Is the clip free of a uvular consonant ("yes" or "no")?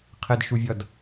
no